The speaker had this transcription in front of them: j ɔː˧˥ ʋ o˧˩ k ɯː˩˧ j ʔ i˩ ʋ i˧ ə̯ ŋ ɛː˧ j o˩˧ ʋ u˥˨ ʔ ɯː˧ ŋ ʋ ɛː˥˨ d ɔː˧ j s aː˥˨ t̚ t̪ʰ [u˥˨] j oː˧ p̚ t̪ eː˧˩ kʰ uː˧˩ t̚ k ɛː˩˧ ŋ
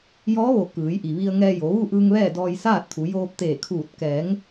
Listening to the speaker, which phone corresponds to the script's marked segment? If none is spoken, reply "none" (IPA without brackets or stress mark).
u˩˧